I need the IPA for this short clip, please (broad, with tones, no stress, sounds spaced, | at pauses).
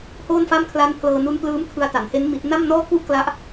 h oː˥˩ n f a˥˩ m kʰ l a˦˥ n pʰ l ɤː˧ n u˦˥ n p l ɯː˦˥ m kʰ ɯ˧ a̯ t a˩˦ n h e˦˥ n m i˦˥ t̚ n a˥˩ m n ɔː˥˩ k u˥˩ ʔ k l a˦˥ ʔ